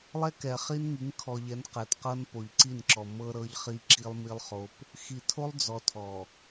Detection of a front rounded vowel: absent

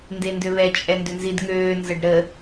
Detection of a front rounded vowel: present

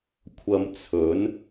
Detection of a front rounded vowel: absent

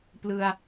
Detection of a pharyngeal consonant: absent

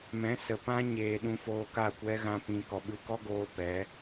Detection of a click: absent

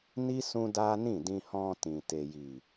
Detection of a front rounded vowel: absent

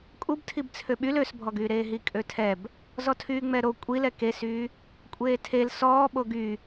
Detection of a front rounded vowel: present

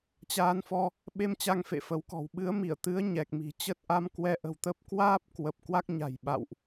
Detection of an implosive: present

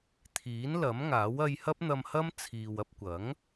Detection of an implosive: absent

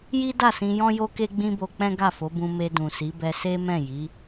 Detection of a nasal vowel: present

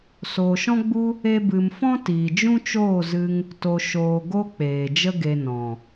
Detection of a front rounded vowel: absent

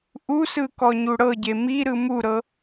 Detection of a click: absent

